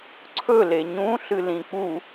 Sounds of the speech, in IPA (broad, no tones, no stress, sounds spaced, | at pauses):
ǀʰ ɵ l e ɲ ũ ɬ ɨ l ĩ k͡p u